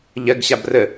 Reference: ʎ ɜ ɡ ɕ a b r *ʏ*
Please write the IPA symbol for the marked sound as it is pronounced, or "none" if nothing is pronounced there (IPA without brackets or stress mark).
ə